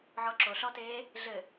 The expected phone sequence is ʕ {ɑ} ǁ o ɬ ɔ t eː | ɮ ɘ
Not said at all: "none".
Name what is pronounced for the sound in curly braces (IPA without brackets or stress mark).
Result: ɔ